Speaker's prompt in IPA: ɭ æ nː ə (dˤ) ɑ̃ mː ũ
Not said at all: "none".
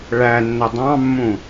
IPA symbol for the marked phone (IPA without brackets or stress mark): dˤ